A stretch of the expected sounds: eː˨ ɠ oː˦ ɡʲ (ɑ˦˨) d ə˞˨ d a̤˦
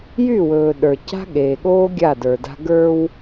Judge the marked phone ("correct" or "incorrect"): incorrect